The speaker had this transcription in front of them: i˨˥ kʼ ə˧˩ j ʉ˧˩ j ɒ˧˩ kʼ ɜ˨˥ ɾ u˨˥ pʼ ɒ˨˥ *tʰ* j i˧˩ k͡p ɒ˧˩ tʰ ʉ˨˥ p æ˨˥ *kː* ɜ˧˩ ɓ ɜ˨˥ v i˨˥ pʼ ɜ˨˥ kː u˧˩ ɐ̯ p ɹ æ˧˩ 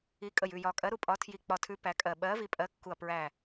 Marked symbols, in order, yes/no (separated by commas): yes, no